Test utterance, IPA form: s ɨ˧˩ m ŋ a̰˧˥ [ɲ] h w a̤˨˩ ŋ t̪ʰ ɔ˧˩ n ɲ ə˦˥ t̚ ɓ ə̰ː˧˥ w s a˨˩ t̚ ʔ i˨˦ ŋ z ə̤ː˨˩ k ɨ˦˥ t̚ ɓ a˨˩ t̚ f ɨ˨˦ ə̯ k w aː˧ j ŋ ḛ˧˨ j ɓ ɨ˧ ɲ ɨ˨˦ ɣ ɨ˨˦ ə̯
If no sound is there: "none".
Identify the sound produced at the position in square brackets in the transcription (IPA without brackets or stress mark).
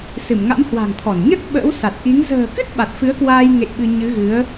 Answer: m